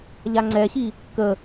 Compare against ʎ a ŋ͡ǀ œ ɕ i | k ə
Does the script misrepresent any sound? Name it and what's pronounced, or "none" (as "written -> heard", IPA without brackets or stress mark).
œ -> ɛ